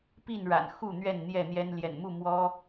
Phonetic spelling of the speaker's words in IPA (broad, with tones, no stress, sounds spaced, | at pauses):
p i˥˨ n ɻ a̰˨˩ n x u˥˨ n̪ ɥ ɛ˥˨ n n̪ j ɛ˥˨ n̪ j ɛ˦ n l j ɛ̰˨˩ n m u˥˨ m w ɔ˦